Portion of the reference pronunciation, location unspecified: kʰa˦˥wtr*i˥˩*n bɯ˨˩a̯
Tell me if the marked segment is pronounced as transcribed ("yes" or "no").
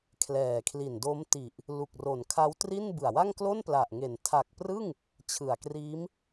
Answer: yes